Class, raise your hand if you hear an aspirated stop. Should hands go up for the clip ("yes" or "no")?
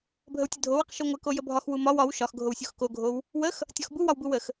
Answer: no